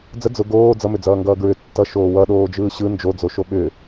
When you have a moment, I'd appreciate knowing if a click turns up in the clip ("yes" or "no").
no